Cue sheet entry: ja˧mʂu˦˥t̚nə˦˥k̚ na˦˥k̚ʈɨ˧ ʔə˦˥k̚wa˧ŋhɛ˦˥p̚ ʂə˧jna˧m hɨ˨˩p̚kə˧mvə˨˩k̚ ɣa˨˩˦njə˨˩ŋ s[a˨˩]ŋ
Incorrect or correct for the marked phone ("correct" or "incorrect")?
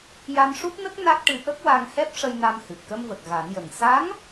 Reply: incorrect